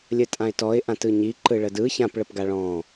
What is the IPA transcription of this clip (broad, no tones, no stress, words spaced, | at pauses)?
lʲətʼãɪ̯tɔɪ̯ ʔãtɯɲi ǃɯɭədɯ çãp ɭəpɡaɭɔ̃